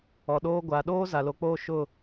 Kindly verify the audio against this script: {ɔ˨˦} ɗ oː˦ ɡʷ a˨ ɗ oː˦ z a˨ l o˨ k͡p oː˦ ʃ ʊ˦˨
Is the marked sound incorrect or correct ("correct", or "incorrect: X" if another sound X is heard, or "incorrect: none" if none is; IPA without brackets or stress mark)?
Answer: incorrect: ɔ˨